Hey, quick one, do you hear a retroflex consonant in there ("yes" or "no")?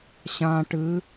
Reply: yes